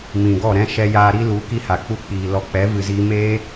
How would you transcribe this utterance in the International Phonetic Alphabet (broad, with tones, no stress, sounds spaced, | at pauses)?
m ĩ˨ ɡ ɔ˦˨ ɾ ɛ̃˦ ʃ ɛ˧ j aː˧ ɾ i˦ l u˨˦ k i˦ h a˨ k͡p u˦ k͡p iː˨ l ɔ˧ k͡p ɛ˨˦ v ɨ˨ z iː˧ m eː˦